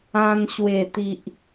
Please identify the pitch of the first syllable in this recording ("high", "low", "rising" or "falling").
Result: high